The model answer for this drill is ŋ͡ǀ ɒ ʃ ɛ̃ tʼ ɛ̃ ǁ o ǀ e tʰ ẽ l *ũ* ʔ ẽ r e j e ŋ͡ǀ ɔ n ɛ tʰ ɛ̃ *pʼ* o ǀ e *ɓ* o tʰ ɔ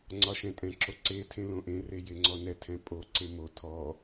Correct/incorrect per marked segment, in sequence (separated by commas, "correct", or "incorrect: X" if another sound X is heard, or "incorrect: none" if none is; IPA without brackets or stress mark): incorrect: õ, correct, incorrect: m